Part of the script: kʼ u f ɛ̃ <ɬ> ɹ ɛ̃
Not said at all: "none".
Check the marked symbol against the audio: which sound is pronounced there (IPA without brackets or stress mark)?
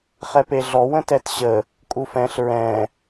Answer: ɬ